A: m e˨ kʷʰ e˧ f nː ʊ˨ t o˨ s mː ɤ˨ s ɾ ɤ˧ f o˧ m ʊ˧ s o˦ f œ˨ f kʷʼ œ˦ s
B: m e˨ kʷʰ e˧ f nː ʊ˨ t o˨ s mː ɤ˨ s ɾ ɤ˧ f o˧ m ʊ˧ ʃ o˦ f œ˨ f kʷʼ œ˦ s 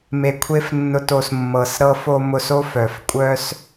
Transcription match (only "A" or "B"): A